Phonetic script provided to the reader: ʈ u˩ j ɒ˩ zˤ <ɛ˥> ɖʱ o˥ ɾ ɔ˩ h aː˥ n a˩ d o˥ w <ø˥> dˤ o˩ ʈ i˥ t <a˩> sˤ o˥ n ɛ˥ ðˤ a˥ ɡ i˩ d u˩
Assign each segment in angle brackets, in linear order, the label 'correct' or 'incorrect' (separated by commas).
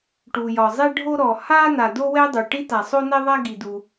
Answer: correct, incorrect, correct